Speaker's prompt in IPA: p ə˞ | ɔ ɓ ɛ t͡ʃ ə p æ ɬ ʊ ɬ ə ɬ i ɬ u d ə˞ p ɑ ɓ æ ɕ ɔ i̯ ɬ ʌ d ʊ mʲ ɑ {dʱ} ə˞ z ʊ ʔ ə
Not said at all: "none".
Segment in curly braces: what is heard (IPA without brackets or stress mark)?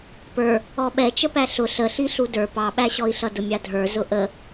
dʱ